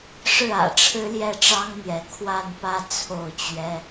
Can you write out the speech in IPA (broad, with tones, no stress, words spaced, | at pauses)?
ʂɻ̩˥˩ä̰˨˩ʈ͡ʂʰɻ̩˥ ljɛ˥˩ʈ͡ʂɑ˥ŋn̪jɛ˧˥ kʰwa˥˧npä˥˧ t͡sʰo˥˩ʊ̯t͡ɕɥɛ˥